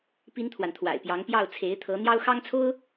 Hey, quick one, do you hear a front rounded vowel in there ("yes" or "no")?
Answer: no